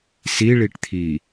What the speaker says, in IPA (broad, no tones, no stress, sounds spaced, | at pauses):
s i ɭ i ʈ t̪ʰ i